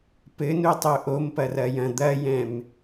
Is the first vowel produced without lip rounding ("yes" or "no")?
yes